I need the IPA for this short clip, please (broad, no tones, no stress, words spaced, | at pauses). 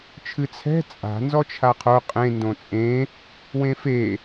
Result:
t͡ʃʰɨt͡sʰɛ̤ t͡sʼa̤ nzɔt͡ʃʰaqʰo qʼẽ ndõt͡sʼẽ | wẽfe